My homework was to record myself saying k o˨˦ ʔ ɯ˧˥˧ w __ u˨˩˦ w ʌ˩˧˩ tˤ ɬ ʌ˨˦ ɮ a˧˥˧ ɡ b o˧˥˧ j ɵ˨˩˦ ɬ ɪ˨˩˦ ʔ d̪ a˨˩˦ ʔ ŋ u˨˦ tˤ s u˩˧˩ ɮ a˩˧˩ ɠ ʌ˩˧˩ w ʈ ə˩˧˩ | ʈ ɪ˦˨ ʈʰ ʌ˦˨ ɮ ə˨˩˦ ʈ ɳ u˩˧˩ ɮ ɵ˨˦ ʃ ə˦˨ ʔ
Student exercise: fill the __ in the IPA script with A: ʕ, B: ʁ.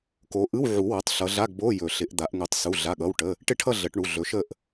A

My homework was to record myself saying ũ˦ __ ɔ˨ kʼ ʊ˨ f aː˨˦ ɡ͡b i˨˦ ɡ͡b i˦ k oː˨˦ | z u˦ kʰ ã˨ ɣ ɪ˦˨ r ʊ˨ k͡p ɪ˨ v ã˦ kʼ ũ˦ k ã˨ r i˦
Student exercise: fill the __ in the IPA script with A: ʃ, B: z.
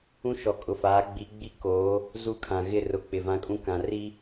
A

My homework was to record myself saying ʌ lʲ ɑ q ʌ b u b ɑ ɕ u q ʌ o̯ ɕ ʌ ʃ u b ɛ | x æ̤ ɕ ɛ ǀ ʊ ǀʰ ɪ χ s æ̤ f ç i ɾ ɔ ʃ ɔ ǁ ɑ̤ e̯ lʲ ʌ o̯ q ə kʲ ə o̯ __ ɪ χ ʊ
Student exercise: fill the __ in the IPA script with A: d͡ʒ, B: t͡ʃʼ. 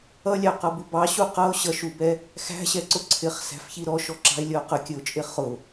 B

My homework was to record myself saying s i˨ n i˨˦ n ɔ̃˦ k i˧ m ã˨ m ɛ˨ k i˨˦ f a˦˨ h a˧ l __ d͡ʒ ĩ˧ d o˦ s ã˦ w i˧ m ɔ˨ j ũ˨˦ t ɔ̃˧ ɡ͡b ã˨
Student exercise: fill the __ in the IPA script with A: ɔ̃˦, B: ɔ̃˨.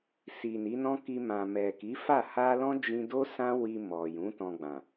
A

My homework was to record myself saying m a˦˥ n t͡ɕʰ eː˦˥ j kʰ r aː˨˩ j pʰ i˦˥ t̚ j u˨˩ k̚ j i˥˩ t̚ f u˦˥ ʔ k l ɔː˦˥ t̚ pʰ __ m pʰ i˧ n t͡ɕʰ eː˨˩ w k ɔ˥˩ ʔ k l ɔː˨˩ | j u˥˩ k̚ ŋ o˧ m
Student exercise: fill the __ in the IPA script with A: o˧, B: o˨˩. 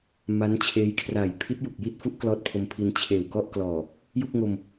A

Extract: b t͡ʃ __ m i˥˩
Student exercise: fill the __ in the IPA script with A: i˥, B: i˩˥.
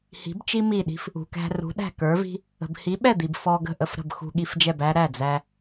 A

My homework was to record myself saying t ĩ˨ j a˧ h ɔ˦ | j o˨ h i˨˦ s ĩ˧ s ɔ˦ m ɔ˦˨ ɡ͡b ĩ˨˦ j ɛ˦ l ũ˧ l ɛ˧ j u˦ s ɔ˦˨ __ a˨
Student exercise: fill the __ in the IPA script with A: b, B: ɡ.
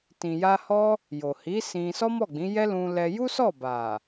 A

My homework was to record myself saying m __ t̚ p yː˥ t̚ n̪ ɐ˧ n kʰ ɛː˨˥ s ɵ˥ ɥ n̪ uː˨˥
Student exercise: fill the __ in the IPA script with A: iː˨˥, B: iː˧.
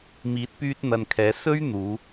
A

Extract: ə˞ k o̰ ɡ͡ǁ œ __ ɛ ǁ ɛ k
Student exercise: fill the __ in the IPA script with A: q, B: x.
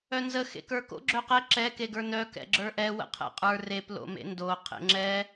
A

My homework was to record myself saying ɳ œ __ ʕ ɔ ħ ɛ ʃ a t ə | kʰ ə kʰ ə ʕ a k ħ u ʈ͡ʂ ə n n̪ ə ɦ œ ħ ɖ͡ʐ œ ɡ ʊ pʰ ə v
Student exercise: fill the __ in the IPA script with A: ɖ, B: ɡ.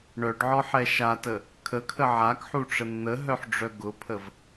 A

